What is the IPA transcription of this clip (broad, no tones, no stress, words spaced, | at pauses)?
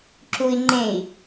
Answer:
ǁui̯ ŋ͡ǃẽi̯